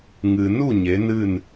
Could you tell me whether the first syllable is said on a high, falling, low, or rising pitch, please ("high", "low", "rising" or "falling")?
low